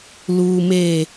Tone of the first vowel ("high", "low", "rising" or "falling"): low